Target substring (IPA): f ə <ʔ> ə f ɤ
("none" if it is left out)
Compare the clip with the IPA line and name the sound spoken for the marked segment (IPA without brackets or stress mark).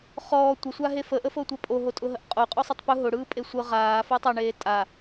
ʔ